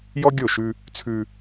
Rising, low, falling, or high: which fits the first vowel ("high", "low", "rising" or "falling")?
high